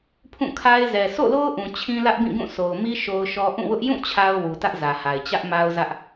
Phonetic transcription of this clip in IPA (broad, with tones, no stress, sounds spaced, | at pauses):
pʰ ũ˦˨ kʰ a˦ ɪ̯ z ɛ˨ sʰ o̰˦˨ l o˦ ʊ̯ ʔ ũ˨ t͡ɕʰ ĩ˦ l ä˦ ʔ b ĩ˦˨ ɡ ũ˦˨ s o˨ ʊ̯ m i˦ ʃ o˦ ʊ̯ ʃ ɔ˦ ʔ ũ˦˨ w ʊ˦ ʔ j ũ˦˨ t͡ɕʰ a˦ ʊ̯ w u˨ t ä˦ ʔ z ä˨ h a˨ ɪ̯ t͡ɕ ä˦ ʔ m a˦ ʊ̯ z ä˦ ʔ